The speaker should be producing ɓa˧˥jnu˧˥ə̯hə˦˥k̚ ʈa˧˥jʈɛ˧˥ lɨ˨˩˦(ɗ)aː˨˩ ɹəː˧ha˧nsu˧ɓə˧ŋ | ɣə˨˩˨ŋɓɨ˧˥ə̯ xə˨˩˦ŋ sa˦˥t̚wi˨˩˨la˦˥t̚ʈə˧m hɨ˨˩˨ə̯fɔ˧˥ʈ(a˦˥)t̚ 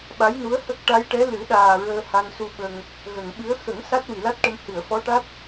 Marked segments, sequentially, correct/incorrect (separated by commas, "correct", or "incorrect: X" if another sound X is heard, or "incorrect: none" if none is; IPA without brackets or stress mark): correct, correct